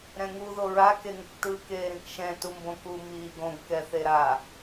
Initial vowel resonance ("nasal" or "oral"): nasal